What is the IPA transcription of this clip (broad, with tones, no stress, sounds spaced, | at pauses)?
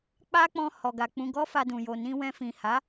k͡p a˦ k͡p ɔ̃˧ h ɔ˨ ɡ a˨ k͡p ũ˧ ɡ ɔ˦ f a˧ d ũ˨ j o˨ n ĩ˧ w ɛ̃˧ f ĩ˨ h a˨˦